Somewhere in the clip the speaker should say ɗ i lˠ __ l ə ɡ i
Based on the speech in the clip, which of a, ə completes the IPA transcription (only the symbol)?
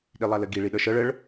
a